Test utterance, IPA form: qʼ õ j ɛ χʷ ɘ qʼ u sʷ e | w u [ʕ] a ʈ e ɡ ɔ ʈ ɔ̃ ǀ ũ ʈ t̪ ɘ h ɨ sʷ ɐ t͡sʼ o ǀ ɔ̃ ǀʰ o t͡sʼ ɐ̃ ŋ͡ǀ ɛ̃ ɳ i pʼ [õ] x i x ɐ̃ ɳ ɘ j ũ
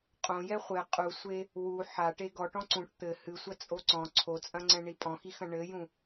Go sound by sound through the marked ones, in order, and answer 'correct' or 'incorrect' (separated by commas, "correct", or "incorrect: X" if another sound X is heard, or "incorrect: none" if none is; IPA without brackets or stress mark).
incorrect: ħ, incorrect: ɔ̃